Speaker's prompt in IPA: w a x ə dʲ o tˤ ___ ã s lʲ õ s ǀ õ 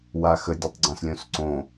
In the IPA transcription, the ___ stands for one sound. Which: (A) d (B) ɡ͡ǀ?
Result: B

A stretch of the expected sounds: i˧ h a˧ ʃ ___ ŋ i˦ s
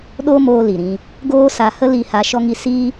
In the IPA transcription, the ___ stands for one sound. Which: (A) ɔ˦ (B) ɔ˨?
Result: A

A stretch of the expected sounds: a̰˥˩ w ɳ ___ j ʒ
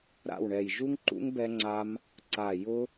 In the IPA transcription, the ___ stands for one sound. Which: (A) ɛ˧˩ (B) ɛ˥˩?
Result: A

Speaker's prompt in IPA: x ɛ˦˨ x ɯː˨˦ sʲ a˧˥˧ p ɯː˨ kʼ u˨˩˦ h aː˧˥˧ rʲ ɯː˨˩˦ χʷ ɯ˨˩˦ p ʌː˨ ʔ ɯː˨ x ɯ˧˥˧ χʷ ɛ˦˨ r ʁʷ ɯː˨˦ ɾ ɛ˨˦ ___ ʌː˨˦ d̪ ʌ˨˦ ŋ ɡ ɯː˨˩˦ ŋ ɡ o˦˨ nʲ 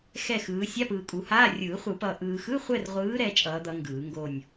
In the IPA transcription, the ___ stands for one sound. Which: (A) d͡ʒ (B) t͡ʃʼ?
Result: B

